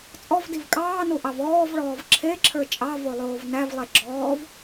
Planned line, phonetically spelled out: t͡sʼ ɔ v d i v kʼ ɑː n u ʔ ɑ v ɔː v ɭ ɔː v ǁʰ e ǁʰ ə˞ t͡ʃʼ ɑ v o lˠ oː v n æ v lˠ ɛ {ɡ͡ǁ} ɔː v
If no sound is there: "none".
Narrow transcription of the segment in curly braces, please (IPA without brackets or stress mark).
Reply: ɡ͡ǁ